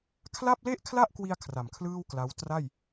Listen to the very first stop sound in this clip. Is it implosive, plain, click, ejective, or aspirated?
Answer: aspirated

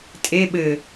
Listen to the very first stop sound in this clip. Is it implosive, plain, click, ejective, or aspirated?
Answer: ejective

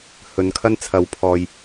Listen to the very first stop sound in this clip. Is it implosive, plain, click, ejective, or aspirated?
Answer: aspirated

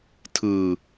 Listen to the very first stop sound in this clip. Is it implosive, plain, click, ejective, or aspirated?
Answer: aspirated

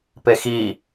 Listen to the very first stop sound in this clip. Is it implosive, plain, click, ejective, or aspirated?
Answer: plain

